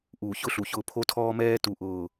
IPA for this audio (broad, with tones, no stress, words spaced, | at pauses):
ʔuː˨çʊ˦ɬu˨çʊː˧ pʰo˦tʰɔː˦mɛː˦ tu˦˨ʔʊː˦˨